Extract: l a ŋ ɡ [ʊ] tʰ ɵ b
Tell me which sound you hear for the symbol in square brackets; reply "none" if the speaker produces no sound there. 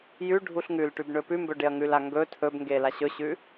ɵ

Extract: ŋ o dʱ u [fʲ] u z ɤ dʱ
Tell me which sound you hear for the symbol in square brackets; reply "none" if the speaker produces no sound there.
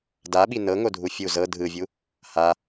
fʲ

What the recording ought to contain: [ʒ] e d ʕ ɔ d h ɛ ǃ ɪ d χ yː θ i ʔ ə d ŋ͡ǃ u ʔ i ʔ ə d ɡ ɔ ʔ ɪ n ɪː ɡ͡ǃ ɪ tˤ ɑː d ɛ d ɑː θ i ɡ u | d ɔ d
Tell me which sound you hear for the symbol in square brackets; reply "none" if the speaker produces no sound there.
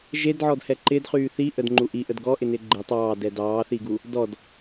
ʒ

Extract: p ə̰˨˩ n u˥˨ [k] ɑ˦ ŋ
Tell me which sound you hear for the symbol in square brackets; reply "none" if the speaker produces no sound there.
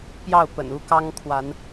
k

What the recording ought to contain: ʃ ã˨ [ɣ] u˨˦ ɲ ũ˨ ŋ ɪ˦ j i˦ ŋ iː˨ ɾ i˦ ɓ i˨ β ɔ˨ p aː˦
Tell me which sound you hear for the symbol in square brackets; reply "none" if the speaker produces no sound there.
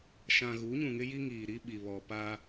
ɣ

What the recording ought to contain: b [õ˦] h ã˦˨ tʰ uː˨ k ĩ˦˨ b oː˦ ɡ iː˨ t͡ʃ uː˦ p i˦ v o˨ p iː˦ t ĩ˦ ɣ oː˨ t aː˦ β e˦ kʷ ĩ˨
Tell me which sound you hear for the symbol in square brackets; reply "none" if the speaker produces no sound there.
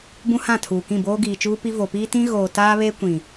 ũ˦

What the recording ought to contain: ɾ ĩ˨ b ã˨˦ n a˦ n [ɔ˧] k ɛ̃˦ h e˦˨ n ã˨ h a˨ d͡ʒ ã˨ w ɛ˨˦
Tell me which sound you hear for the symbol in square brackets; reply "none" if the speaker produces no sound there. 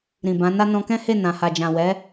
ɔ̃˧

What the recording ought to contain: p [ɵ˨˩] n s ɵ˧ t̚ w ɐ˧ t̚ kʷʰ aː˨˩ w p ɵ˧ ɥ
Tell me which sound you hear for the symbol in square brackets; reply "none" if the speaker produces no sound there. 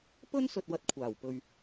ɵ˥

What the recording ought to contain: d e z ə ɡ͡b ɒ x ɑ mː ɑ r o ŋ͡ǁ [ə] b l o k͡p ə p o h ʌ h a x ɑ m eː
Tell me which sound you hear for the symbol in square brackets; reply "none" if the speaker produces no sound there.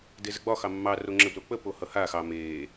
ə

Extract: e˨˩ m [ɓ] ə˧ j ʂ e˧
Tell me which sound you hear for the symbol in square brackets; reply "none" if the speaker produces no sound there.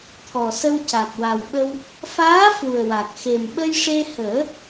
ɓ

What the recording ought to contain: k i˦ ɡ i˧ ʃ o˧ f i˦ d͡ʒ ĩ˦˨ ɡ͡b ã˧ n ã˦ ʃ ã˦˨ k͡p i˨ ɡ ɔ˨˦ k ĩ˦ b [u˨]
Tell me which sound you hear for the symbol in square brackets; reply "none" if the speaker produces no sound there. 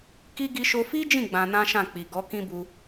u˧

